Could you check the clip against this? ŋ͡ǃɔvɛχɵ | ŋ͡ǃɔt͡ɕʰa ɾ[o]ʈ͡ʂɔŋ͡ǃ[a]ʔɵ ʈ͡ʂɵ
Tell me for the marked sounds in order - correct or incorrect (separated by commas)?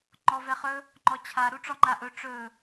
incorrect, correct